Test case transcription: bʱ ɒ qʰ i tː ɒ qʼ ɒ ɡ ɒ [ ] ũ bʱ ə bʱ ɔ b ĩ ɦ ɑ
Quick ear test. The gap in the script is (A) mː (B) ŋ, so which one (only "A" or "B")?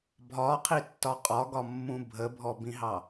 A